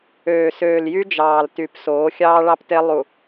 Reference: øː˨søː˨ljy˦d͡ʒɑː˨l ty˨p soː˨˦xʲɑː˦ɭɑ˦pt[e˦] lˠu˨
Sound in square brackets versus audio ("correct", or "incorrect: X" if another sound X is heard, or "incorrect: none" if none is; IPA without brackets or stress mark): correct